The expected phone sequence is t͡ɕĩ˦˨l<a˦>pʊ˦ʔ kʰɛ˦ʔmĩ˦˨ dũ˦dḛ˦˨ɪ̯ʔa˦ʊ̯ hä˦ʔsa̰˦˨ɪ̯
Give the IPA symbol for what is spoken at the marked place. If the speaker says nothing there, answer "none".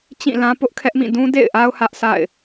ã˦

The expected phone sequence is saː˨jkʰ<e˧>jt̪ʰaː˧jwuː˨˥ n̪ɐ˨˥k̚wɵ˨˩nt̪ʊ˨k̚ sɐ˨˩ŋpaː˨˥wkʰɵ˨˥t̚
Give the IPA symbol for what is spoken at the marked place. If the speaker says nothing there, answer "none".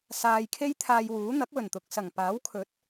e˥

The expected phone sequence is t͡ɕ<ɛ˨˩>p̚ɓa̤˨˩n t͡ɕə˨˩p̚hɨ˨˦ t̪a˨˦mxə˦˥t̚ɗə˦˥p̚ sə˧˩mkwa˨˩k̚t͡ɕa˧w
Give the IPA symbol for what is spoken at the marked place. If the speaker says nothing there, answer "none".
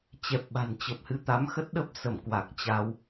ɛ˨˩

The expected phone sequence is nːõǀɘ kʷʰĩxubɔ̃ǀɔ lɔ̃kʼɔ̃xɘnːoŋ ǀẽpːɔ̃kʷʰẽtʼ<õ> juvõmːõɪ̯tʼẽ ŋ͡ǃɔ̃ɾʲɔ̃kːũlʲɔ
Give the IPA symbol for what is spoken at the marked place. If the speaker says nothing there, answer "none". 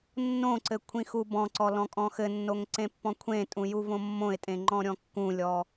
ũ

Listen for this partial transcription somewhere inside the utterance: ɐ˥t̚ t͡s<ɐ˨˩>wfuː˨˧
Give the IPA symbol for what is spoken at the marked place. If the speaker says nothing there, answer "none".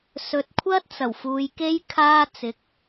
ɐ˨˩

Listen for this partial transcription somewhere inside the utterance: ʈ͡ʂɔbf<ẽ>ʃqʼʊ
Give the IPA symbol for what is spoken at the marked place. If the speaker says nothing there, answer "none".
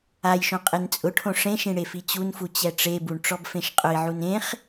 ẽ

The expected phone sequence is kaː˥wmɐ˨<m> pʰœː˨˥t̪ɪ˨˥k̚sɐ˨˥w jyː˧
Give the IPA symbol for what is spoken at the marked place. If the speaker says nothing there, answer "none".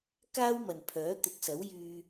n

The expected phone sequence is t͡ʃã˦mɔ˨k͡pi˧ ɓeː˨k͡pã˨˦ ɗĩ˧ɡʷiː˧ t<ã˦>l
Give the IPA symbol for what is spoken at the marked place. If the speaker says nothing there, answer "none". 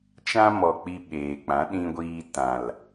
ã˨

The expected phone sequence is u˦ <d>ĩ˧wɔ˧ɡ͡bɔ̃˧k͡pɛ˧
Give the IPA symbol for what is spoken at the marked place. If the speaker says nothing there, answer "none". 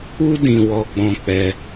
d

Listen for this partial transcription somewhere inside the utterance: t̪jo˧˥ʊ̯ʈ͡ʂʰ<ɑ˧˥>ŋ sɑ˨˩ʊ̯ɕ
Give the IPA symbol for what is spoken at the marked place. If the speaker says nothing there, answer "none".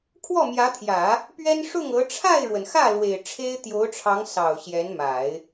ɑ˧˥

